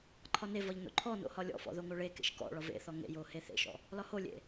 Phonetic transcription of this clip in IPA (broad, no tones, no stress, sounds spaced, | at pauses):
ǃʰ ɒ n e v ɒ ʎ n o̰ ǃʰ ɔ n o̰ h ɒ lʲ ɔ̰ f ɔ̰ ð o ŋ o ɭ e k ḛ ʃ k ɔ̰ ɭ ɒ v ḛ θ ɔ ŋ ḛ j o h e θ ḛ ʃ ɔ̰ | l ɒ h o lʲ ḛ